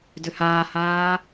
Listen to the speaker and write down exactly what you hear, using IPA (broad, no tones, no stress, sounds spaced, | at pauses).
d ʏ h aː h aː